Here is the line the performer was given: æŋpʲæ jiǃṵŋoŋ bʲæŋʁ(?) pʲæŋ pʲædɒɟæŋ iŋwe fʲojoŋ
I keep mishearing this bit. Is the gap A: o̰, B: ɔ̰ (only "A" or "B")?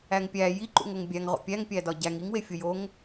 A